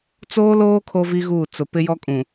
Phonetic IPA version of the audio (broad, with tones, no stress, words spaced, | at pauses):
t͡soː˦loː˦ kʰo˦vi˦ɣuː˦˨ t͡sʊ˨ pɪ˦jɔ˦kʼũ˨